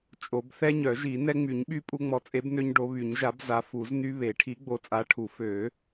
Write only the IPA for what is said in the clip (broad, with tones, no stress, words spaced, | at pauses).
t͡ʃʼo˨˩˦b θɛ˦ɲœ˨˩˦ ʒi˨˩˦ nɛ˦ ŋ͡my˨˩˦ɲɓy˦ pʼu˦ŋ͡mɔ˨˥ t͡sʼe˨˥bnø˦ɲ ɖo˨˥ βy˨˩˦ɲʒa˨˥b za˨˥ fu˨˩˦zny˦ βe˨˩˦ʈʰi˨˥ ɡ͡bo˨˥t͡sʼa˨˥ʈʰu˨˩˦ fø˨˩˦